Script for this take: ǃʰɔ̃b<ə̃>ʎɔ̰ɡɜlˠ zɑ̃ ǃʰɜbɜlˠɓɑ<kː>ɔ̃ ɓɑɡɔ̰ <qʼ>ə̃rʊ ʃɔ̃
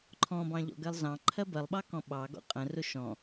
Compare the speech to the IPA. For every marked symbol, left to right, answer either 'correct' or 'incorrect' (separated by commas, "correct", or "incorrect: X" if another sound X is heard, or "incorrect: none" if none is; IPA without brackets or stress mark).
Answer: incorrect: ɑ̃, incorrect: k, correct